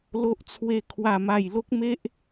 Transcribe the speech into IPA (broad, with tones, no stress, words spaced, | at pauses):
lo˦ʔt͡sʰwe˥˧kʰwa˥˧ma˥˧j lo˦k̚me˦ʔ